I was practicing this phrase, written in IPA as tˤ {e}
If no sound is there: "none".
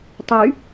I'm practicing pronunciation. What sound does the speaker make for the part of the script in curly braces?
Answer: y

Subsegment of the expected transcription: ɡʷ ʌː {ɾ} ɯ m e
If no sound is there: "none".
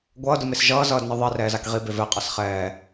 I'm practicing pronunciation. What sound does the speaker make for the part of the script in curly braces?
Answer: d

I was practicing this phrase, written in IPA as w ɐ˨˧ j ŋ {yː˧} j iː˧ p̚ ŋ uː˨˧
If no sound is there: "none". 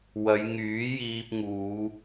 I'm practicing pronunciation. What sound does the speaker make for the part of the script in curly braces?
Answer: yː˨˥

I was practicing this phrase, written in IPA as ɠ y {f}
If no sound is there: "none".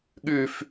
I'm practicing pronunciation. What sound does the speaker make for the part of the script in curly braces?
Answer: f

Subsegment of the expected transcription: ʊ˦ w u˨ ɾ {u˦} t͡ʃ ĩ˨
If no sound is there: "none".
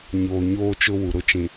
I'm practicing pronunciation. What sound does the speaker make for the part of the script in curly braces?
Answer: ʊ˦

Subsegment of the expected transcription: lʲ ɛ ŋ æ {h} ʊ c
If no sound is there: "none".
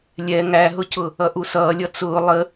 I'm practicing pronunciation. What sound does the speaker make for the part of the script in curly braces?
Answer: ɦ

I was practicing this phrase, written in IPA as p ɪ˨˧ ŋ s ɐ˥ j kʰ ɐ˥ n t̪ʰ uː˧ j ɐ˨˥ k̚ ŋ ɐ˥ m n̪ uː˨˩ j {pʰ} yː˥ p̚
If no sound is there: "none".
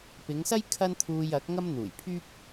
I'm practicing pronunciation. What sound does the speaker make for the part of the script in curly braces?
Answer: pʰ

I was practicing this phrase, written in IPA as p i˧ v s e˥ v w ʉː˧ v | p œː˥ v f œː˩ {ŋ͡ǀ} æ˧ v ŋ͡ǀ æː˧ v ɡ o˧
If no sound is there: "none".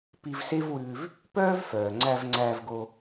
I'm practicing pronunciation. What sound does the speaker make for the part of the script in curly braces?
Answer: ŋ͡ǀ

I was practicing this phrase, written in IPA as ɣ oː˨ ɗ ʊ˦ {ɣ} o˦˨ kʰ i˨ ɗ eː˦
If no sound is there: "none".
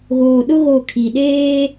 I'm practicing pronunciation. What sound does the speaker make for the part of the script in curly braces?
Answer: ɣ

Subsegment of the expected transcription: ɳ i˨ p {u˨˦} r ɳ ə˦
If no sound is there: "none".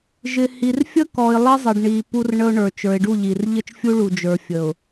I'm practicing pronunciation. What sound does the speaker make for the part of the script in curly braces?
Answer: u˦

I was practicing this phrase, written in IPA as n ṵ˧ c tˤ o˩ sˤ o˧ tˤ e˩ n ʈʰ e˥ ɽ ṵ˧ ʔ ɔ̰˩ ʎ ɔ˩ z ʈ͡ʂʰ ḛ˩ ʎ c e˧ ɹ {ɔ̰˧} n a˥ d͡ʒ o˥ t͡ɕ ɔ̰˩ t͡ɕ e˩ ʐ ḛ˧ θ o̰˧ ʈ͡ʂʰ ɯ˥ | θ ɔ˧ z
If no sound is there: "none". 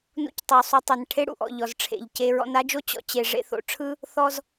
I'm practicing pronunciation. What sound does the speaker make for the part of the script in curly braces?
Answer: ɔ̰˧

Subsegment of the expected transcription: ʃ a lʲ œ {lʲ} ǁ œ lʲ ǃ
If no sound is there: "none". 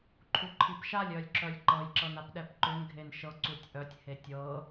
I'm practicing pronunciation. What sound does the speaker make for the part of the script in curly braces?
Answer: lʲ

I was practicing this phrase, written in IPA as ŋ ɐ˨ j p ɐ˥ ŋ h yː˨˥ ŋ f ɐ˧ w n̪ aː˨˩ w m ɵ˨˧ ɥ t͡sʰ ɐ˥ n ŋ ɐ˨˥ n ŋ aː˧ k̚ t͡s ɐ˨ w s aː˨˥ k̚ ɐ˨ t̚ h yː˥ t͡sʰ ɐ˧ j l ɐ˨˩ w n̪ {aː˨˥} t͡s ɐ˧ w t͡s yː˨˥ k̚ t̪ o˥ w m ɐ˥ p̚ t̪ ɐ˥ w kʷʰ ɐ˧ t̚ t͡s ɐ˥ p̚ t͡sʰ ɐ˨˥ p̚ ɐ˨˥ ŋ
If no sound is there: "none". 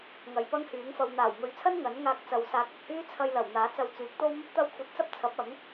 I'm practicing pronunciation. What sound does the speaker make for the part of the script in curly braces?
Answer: aː˨˥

